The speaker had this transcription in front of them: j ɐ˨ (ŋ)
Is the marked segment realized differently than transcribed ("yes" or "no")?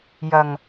no